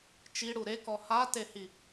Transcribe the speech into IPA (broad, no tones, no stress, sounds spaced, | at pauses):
t͡ʃ i ɽ u ɾ e k ɔ h a t e h i